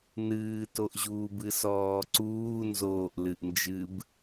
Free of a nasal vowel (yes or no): yes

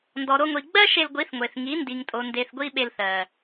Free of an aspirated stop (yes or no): yes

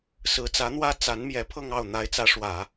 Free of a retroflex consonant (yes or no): no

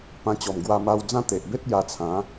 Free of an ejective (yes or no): yes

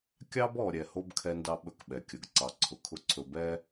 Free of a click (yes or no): no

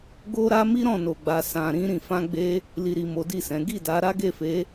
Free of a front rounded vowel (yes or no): yes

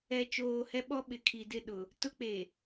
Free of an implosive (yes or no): no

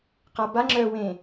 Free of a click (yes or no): no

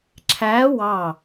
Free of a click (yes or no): no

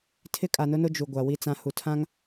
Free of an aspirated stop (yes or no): no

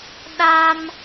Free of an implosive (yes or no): no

